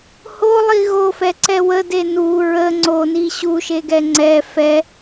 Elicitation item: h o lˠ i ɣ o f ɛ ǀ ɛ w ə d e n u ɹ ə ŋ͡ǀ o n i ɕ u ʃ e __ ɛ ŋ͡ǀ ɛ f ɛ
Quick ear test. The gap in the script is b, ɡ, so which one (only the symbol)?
ɡ